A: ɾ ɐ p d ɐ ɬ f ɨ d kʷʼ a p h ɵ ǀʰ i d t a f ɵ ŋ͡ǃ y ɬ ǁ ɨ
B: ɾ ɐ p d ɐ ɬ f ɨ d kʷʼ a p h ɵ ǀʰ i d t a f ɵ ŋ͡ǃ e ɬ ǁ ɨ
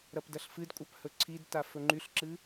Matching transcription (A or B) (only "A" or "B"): A